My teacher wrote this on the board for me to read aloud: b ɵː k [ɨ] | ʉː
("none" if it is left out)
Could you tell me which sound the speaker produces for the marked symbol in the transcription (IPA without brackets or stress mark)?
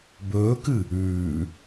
ɨ